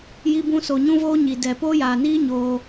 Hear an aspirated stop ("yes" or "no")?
no